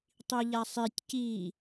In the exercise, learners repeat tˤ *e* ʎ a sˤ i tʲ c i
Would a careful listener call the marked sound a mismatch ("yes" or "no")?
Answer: yes